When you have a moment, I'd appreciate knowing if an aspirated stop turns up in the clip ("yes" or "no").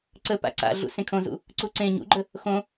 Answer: yes